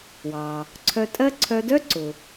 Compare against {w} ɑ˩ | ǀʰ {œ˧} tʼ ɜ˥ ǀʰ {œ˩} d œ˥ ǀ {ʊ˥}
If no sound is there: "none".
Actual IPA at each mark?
w, œ˧, œ˧, ʊ˩

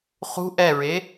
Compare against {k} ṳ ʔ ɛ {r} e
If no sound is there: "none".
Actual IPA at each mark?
χ, ɹ

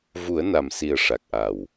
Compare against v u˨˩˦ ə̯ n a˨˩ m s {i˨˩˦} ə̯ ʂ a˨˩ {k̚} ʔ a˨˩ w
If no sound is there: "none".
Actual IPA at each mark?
i˨˩, k̚

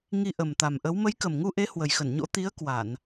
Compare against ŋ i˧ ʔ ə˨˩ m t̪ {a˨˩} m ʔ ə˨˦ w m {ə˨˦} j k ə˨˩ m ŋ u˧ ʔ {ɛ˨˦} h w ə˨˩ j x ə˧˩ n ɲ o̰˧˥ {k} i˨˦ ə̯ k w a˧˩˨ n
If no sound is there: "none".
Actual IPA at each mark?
a˨˩, ə˨˦, e˨˦, t̪

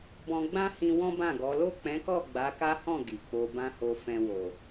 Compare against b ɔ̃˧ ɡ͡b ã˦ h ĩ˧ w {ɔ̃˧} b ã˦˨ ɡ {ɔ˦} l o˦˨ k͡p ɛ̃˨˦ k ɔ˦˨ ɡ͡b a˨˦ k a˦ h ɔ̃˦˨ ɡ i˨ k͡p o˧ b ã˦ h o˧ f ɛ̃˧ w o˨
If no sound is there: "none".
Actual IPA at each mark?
ɔ̃˦, ɔ˨˦

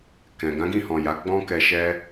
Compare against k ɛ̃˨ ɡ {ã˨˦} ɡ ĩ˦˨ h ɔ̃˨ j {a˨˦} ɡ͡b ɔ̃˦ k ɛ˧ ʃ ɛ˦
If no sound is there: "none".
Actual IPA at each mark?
ã˨˦, a˨˦

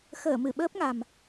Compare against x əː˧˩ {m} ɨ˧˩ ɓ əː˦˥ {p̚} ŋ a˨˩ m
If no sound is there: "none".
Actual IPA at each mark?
m, p̚

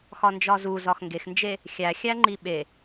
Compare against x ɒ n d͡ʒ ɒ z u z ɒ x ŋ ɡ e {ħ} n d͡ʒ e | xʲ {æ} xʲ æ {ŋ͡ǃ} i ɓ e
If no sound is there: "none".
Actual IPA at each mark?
x, æ, ŋ͡ǃ

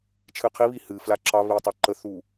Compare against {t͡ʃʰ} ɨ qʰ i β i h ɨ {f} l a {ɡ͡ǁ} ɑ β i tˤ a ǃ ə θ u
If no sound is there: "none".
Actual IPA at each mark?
t͡ʃʰ, f, ǁ

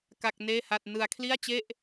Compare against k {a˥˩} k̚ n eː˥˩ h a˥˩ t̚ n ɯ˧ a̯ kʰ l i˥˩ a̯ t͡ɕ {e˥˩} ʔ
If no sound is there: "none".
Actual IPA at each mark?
a˥˩, e˥˩

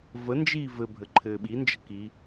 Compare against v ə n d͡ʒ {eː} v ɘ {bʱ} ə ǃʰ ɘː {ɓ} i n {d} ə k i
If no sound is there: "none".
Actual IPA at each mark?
iː, bʱ, ɓ, d͡ʒ

